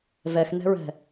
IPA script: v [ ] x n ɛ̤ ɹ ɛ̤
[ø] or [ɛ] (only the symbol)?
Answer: ɛ